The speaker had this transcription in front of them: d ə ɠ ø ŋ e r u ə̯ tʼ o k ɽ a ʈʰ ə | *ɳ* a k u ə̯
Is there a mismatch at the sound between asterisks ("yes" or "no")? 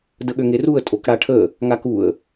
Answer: yes